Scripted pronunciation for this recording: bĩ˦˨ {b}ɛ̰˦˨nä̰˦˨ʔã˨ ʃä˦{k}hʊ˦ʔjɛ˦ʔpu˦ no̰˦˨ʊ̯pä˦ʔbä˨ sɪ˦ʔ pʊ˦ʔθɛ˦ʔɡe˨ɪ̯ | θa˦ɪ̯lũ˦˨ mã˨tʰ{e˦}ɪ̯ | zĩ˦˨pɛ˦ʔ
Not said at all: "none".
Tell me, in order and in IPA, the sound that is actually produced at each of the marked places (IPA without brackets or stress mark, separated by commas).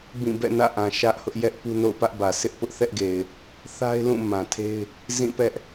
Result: b, ʔ, e˦